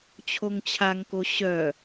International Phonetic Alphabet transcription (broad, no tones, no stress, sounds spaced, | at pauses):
t͡ɕʰ o ŋ t͡ɕʰ a ŋ k o ɕ œ